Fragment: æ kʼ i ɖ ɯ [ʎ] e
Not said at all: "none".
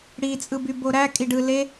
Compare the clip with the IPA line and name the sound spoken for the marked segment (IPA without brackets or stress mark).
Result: l